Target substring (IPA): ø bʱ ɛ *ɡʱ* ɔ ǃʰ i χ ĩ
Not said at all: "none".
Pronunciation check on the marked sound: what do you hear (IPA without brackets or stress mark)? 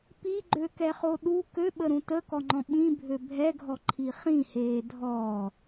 ɡʱ